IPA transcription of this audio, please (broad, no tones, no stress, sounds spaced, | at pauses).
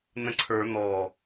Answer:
n ə̃ ǀʰ ə˞ n̪ ɔ